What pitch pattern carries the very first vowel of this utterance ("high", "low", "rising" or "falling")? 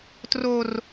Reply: high